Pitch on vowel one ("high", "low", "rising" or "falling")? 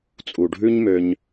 low